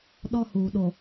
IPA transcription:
ɗ ɔ˦ h uː˨ ɗ o˨

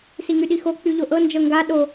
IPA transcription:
s i ŋ y ɗ i x o k͡p y ʎ o ʔ ɤ n d͡ʒ ɤ ŋ ɡ a ɗ o

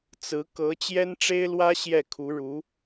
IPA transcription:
t͡s ɹ̩˧˥ k ɤ˧˥ t͡ɕ j ɛ˥ n ʈ͡ʂ e˥ ɪ̯ l w ä˥ ɕ j ɛ˥˩ kʰ u˧˥ ɻ u˧˥

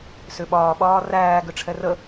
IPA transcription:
s ʏ ɓ ɒː ɓ ɒː r æː ɡ ʏ ʈ͡ʂʰ ɛ r ə

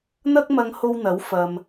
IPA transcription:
n̪ ɐ˥ k̚ m ɐ˧ ŋ h o˧ w n̪ ɐ˨˥ w f ɐ˧ m

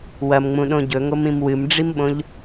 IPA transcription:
w ɐ m ŋ͡m ũ ɗ õ ɟ ɵ ŋ o m ĩ m w ɨ m ɖ͡ʐ i m ɓ õ ʎ

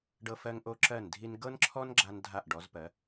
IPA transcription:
ɖ ɤ˧ f ɜ˧ ŋ ʔ o˧ ǁ ɜ˧˩ n dʱ i˧ n ɡ ɤ˥ n ǁʰ ɔ˥ n ɡ͡ǁ a˧ n dʱ a˧˩ ʔ ɖ ɔ˩˧ z p ɜ˩˧

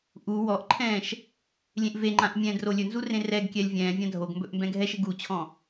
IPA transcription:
ʔ u w ɔ ʔ ǃʰ ɛ̃ː ʃ | lʲ ẽ ʔ v e ŋ͡ǃ ã ʔ mʲ ɛ̃ː d r o lʲ ɵ n z u r ẽ r ɛ ɡ kʲ ɛ lʲ vʲ ɛ̃ː vʲ ã dʱ o ɡ m b ɵ ʔ m b ɛ̃ ɡʱ ɛ ʃ e ɡ u t͡ɕʰ ɔ̃

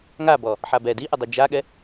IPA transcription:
ŋ a b ɔ | ħ a b ɛ d i ʔ ə dˤ i d͡ʒ a ɠ ɛ

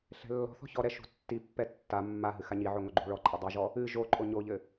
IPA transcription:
ɬ ɛ̤ lː ɔ̤ θ ɔ̤ ç ɔ ɾ ɛ ʃ ṳ tː i pː ɛ tː a mː a ɦ ɨ x a ɲ i ʕ o ŋ o ɡ͡ǃ ṳ ɭ ɔ ǃʼ a dˤ i ʒ ɔ | ɨ ʒ o ǃʼ o ɲ o ʎ ɘ

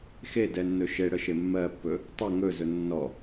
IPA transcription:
x e d ɛ nː ɵ ʃ e ɽ ə ʃ e mː ɜ pː ɵ | tˤ ɪ ŋ ɵ z ɵ nː ɔ

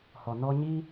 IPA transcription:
h ɔ˨ n ɔ˧ ɲ iː˦

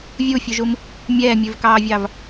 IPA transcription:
vʲ u fʲ ʉ ʒ u m | mʲ ɛː mʲ ʉ v k ɑː vʲ ɑ v

